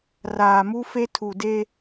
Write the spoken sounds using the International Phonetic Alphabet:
raː˨mu˦fe˦ tʰu˨de˦

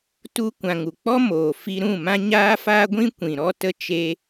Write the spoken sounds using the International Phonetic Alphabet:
tu˦ kʷã˨ŋu˨k͡pɔ˦ moː˨fi˧ ɾũ˦˨mã˦ ɲaː˦faː˦ɡʷĩ˦ kʷĩ˨ ɾɔ˦tə˦t͡ʃe˦

